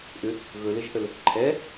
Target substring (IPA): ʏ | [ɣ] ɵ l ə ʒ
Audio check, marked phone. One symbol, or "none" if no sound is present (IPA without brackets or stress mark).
ɣ